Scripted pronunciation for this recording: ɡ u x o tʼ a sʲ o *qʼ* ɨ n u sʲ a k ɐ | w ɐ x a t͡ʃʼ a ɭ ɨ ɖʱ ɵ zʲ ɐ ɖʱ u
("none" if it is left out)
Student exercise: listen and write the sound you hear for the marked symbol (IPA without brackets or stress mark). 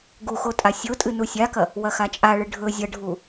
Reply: tʼ